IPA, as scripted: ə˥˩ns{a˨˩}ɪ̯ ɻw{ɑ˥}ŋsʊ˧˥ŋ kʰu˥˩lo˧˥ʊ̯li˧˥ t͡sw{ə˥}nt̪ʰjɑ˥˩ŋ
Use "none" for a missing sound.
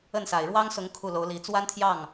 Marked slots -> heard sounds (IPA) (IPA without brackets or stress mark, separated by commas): a˨˩, ɑ˥, a˥